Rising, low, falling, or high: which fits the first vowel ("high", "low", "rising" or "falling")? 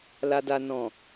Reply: low